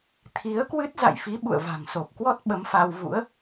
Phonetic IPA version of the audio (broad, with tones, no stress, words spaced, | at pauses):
t̪ʰi˨˦ə̯kwɨ˦˥t̚ za̰˧˨jfi˨˦ ɓṵ˧˨ə̯va̤˨˩ŋso˨˩p̚kwɔ˦˥t̚ ɓə˨˦mfa˧w vṵ˧˥ə̯